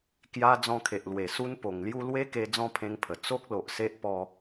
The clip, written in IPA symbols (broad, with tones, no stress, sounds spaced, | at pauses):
k j a˧ d͡z ɔ̃˧ kʰ e˨ ʔ l w e˨˩ s u˦ n p o˨˩ ŋ l j u˥˧ l w e˦ k e˧ d͡z ɔ̃˥˧ pʰ ẽ˧ ŋ pʰ ə˨˩ t͡s o˦ k̚ l o˨ ʔ s e˦ ʔ p ɔ˧